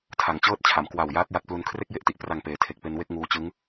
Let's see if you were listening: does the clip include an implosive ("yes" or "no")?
no